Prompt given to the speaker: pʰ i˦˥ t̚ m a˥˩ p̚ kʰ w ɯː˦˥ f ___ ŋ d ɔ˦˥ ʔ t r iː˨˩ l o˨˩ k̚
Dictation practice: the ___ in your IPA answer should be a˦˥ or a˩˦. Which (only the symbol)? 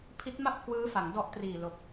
a˩˦